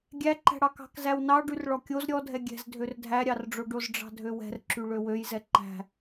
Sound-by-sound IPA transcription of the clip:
ɡʲ æ ǃ æ̤ ɽ ɑ k ɑ̤ k z æ w n ɑ ɖ y r ɭ ɔ kʲ o z ɾʲ ɔ dʱ ɛ ɡʲ ɛ̤ z dʱ ø r dʱ æ ɾʲ ɑ r ɖ͡ʐ o ɖ o z ɖ͡ʐ ɑ̤ dʱ ø w ɛ̤ r ǁ y ɭ ø w ø j z ɛ ǃ æ̤

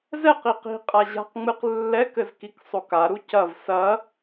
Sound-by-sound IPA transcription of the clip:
z ɛ q i q i̤ qʼ a ʑ a̤ q ŋ͡m ɨ q lː ɛ k ɘ z k i k sˤ o k a ɾ u c ɐ v s ɐ

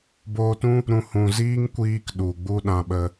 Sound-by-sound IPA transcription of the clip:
b oː˧ t ũ˦ | ɾ ũ˧ h ũ˨ z iː˦ ŋ kʷ iː˦ k ɗ u˨ ɡ͡b u˦ ɗ ã˧ ɓ ə˧

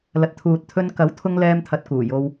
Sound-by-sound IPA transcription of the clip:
l ɐ˨ t̚ t̪ʰ uː˨ t̚ t̪ʰ ɵ˧ n k ɐ˨˥ w t̪ʰ ʊ˥ ŋ l ɛː˥ m t̪ʰ ɐ˧ t̚ k uː˨˩ j o˧ w

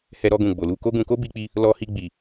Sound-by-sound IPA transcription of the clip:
h ɛ˧ ɾ ɔ˧ ɡ ũ˨ ɡ͡b o˨ l u˧ k o˦ ɡ ũ˧ k o˦ b i˧ k͡p i˧ | l ɔ˧ h i˧ ɡ͡b i˨

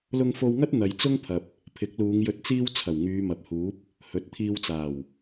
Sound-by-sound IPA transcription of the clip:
l ʊ˧ ŋ f o˧ w ŋ ɐ˥ t̚ n̪ ɐ˨ j t͡s ʊ˥ ŋ pʰ ɐ˨ p̚ | pʰ ɪ˨˥ k̚ l uː˨˧ ŋ j ɵ˧ t̚ t͡s iː˥ w t͡sʰ ɐ˨˩ w ŋ yː˨˧ m ɐ˨ p̚ h uː˨˥ p̚ | h ɵ˨˥ t̚ t̪ʰ iː˧ w t͡s aː˨˩ w

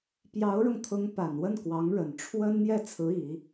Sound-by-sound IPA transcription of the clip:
p j ɑ˧˥ ʊ̯ ɻ ʊ˧ ŋ t̪ʰ ʊ˧˥ ŋ p a˨˩ n w ə˥˩ n k w ɑ˧˥ ŋ ɻ ə˨˩ n ʈ͡ʂʰ w ə˥ n n̪ j ɛ˥˩ t͡sʰ ɹ̩˧˥ i˨˩˦

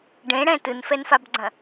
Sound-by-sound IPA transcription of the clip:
ɖ ẽ ɽ ɛ̃ t ɯ n f ɛ n f a b ɡ͡ǀ ɐ̃

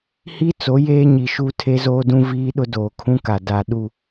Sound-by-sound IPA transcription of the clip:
h i˦ t͡s o˨˦ j eː˦ ɲ i˨ ʃ u˦ tʰ e˦ z oː˦ d ũ˦ v iː˦ ɗ ʊ˦ d oː˨ kʰ ũ˦ k a˨ d a˨ ɗ u˦˨

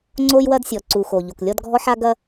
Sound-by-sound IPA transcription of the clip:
ŋ͡ǀ o˦ j w ɐ˦ d sʲ ɔ˨ ǀ u˨ x o˨ ʎ o˨ k lʲ ɔ˦ d ɡʱ ɔ˦ ħ a˦ ɡ ɐ˦

